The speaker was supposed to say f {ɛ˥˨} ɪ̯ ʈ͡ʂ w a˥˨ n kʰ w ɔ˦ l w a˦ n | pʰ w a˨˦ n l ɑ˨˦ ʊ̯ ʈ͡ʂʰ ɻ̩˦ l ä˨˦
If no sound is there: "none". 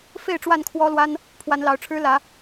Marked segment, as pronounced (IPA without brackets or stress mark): e˥˨